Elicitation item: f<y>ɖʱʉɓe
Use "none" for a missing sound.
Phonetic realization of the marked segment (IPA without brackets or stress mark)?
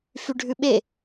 y